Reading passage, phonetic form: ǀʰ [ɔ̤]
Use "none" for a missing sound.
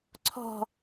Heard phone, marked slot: ɔ̤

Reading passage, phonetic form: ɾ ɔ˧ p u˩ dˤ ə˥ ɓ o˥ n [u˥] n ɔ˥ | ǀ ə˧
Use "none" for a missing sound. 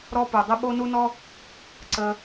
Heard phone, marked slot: u˥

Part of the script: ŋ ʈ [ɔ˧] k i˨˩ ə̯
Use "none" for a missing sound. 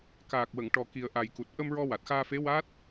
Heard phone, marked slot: ɔ˨˩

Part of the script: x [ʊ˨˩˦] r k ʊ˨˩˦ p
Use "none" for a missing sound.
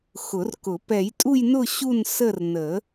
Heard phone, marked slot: ʊ˨˩˦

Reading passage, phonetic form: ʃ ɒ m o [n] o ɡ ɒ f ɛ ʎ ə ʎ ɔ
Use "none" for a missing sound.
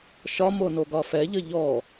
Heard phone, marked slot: n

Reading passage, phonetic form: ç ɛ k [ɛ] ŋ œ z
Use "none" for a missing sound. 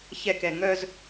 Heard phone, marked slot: ɛ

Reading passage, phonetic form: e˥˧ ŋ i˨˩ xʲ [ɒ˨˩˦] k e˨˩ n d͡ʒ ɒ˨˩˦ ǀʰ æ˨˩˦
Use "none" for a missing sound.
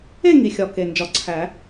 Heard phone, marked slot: ɒ˨˩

